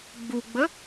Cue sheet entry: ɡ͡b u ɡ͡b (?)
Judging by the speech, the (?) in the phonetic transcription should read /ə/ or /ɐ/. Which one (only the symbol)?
ə